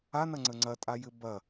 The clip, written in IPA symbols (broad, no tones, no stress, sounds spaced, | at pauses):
a n ɐ ŋ͡ǀ ə ŋ͡ǀ ɐ tʼ a j ɘ b ɐ